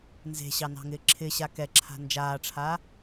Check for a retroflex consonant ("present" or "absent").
present